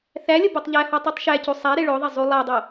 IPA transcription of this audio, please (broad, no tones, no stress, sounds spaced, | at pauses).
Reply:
θ æ lʲ ə b o tˤ ʎ æ h ɔ tˤ o tˤ ʃ æ c u sˤ æ ɾ e ɭ o ðˤ e zˤ u lˠ æ dˤ o